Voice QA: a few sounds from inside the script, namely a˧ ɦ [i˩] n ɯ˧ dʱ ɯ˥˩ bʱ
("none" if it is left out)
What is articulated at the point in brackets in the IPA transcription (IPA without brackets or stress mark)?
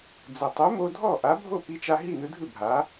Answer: i˥˩